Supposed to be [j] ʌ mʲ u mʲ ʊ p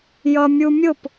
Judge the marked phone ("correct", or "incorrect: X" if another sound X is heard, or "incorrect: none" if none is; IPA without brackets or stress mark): correct